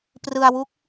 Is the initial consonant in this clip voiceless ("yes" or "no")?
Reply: yes